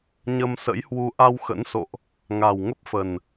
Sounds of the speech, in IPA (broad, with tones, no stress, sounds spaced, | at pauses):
ɲ ə˧ m s ə̰˧˥ j h w u˧ ʔ a˧ w x ə̰˧˥ n s o̰˧˨ ʔ | ŋ a˨˩ w ŋ ə˦˥ p̚ f ə˨˩ n